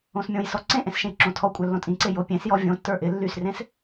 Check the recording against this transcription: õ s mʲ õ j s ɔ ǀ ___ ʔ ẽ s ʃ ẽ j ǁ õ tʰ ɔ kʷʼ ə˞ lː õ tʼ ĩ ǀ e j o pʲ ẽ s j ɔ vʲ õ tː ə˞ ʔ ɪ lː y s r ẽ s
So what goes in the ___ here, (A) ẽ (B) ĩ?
A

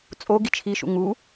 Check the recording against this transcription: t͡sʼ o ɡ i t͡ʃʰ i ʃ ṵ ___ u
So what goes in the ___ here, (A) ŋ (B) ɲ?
A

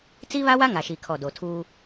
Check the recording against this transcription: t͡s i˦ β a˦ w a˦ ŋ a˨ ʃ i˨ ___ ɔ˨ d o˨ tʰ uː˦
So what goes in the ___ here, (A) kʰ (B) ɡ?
A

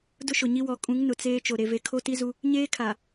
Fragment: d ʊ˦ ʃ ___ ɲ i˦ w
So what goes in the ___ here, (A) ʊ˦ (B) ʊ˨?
B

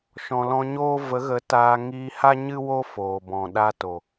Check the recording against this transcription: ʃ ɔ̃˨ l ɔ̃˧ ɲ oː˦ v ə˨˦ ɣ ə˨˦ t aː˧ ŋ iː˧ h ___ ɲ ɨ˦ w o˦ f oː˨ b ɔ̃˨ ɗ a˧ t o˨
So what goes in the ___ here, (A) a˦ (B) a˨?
A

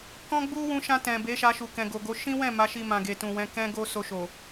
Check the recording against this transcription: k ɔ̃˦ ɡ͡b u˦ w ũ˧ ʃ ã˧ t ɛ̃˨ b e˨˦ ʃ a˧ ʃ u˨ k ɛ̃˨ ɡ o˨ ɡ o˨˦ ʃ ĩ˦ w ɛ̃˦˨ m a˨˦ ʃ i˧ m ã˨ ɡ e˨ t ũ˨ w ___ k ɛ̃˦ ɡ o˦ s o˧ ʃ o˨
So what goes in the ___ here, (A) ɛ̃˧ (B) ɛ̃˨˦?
B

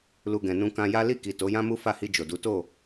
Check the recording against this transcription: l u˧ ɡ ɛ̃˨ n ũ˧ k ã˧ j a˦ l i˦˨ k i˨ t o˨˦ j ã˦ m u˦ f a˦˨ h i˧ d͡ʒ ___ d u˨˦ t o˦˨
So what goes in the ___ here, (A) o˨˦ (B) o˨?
B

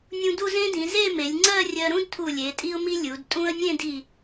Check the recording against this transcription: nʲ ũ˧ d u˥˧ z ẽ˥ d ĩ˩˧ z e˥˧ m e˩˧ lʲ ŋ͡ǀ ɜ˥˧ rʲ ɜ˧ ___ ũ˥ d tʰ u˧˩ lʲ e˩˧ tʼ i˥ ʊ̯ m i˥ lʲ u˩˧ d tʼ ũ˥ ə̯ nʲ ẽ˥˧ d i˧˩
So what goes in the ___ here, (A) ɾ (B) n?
A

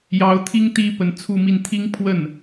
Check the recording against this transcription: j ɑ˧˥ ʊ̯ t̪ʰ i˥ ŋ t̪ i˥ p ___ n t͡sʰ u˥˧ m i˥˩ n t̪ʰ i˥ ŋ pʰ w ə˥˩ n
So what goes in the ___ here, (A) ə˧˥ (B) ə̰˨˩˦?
A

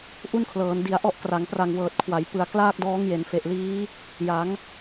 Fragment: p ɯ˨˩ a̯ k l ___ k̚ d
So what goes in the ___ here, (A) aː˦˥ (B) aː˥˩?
B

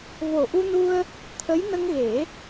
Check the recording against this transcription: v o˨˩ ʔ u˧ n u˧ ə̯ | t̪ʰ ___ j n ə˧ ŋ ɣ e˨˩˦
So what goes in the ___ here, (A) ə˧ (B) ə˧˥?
B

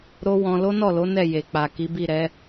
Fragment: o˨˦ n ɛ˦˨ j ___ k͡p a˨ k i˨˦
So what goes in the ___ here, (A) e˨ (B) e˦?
A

